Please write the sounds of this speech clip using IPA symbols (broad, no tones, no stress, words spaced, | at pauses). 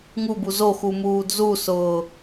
ŋubu zoxu muːdzusʊː